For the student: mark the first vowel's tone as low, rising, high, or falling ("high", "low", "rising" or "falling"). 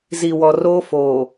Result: low